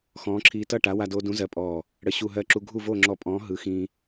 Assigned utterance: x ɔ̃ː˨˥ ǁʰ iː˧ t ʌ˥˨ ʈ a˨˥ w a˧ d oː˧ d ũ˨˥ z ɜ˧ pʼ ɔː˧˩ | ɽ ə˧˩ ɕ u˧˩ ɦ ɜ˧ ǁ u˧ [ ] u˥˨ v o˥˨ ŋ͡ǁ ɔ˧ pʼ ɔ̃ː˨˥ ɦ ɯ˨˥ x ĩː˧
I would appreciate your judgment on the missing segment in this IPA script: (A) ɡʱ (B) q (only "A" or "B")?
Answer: A